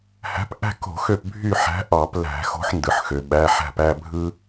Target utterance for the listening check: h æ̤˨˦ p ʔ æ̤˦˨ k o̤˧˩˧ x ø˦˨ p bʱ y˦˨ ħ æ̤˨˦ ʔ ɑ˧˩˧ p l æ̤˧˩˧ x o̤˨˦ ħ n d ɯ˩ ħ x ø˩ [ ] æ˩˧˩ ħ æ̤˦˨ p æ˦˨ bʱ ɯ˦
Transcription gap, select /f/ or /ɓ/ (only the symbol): ɓ